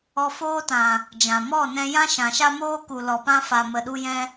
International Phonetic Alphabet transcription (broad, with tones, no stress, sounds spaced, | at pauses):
ɔ˧ f oː˦ t ã˨ | d͡ʒ ã˨ m ɔ˦˨ n ɛ̃˧ j ã˦ ʃ ã˨ ʃ a˦ m oː˦ k u˨ l ɔ˨ p ã˧ f a˨ m ə˧ ɗ u˦ j ɛ̃˦